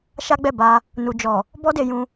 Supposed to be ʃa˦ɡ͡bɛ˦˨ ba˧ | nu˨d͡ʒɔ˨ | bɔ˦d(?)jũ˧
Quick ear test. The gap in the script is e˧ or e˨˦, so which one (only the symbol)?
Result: e˧